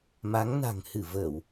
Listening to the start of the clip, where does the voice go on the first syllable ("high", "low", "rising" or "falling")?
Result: rising